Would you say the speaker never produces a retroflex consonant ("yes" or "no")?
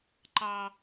yes